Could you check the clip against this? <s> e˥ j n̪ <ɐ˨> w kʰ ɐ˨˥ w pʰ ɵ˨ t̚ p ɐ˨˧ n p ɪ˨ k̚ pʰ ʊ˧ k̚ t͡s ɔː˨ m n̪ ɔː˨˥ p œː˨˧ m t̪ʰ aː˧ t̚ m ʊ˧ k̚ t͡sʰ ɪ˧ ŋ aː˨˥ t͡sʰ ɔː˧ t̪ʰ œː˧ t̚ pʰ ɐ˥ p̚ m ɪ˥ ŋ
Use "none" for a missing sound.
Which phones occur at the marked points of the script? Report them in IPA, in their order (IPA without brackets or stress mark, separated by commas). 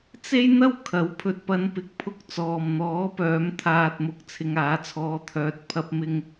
t͡s, ɐ˥